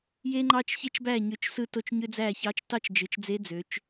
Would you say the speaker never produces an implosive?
yes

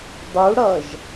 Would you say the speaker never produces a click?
yes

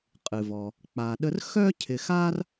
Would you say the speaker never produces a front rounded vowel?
no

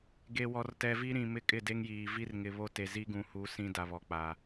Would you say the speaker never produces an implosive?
yes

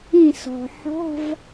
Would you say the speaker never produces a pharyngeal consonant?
no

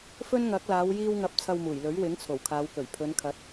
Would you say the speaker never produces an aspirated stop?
no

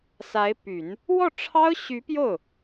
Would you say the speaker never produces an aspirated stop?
no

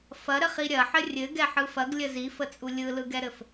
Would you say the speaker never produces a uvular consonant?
no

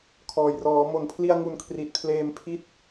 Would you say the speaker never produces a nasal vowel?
yes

